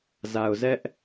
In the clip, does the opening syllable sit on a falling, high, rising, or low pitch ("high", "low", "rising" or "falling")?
low